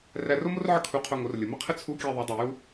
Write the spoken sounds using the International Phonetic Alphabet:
r æ˧ r o˥ m o˥ r ʕ ə˥ kʰ u˧ qʰ o˧ ŋ o˩˧ r lʲ ə˩ m ə˥ qʰ ə˥ t͡sʰ u˧˥ kʲ æ˧ ðˤ o˩˧ dˤ o˩ j u˧

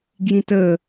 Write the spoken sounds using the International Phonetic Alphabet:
ɡ j ĩ t ə

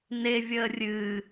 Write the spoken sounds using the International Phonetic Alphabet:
n e vʲ əː rʲ ɨ

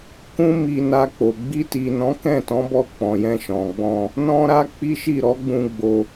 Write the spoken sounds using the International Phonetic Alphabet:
k ũ˦ m i˧ n a˧ k͡p o˨ ɡ͡b i˧ t i˨ n ɔ̃˨˦ k ɛ̃˦˨ t ɔ̃˨˦ b ɔ˦˨ k͡p ɔ̃˨ j ɛ̃˧ ʃ ɔ̃˨ ɡ͡b ɔ̃˧ | n ɔ̃˧ ɾ a˧ k͡p i˦ ʃ i˦˨ ɾ ɔ˨˦ ɡ͡b ũ˧ ɡ͡b o˧

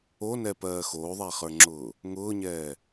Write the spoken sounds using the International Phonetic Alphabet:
o n ɛ p ɜː x oː ðˤ æ χ ə˞ ŋ͡ǁ ʊː | ŋ ʊː ɲ ɛː

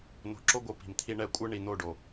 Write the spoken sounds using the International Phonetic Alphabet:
n o̤˨ ǁ o˦ ɡʷ ɯ˨ p i̤˨ m t̪ʰ i˦ ɳ ɛ˦ kʷʼ ɯ˦ ɳ i˨ n̪ o˦˨ ɖ o˨

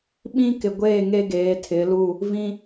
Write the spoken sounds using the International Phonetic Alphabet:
ɓ ĩ˦ k ɪ˨ ɡʷ eː˦˨ ŋ e˦ ɡ eː˨˦ tʰ ɪ˨˦ l u˦˨ | v ĩ˦

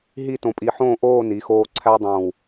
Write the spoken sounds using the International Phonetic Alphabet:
ɦ i˥˧ t õ˧ pʼ i˧ ħ õː˥˧ ʔ oː˥˧ n i˩˧ x oː˧ ǀʰ æ˥ dˤ õː˧˩ w

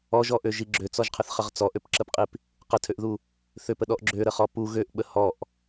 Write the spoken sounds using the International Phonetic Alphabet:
ɔ ʒ ɔ ʔ ø ʒ i ɡ͡ǁ ø t͡s ɔ ʒ qʰ ə θ χ ə ʁ t͡s ɔ ʔ ø p ǁ ə p qʼ i p | q ə tʰ ø ʔ ð u | θ ø p ə ɗ ɔ ʔ ɡ͡ǁ ø ɾ ə χ ɔ p u ɣ ø ʔ ɓ ə h ɔ ʔ

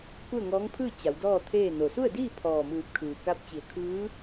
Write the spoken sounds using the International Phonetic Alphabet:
k u˥˨ ə̯ ŋ ɔː˧˥ ŋ pʰ ɯː˥˨ t͡ɕ a˩˧ w d ɔː˥˨ t̪ʰ eː˥˨ n o˩ s u˥˨ ə̯ d iː˥˨ pʰ ɔː˧˩ m ɯː˧˩ p̚ kʰ ɯː˩ k a˧˥ p̚ t͡ɕ i˩˧ ə̯ kʰ ɯː˧˥

